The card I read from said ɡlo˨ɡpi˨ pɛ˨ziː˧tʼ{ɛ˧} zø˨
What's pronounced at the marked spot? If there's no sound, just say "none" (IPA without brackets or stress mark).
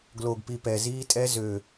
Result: ɛ˧